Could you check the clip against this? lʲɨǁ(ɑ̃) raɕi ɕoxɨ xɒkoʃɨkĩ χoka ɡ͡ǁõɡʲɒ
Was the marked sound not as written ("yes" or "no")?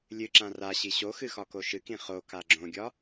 yes